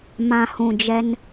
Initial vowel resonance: nasal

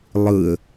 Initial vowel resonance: oral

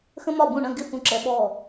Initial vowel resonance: nasal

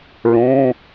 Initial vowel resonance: nasal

